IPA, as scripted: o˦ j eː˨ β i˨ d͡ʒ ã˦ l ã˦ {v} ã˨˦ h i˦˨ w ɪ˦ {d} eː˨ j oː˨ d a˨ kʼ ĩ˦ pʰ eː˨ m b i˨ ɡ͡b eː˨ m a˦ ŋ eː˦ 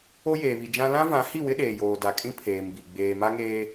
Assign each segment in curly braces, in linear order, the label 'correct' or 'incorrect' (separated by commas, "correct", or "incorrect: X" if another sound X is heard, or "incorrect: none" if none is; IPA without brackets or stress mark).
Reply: correct, incorrect: ɗ